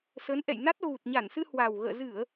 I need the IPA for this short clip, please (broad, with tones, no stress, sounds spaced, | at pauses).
s ə˨˦ n ʔ ɛ̰˧˨ j n a˦˥ t̚ ɣ u˨˩ t̚ ɲ a˧˩ n s ɨ˧ h w a˨˩ w ɣ ə̰ː˧˨ z ɨ˧˩˨ ə̯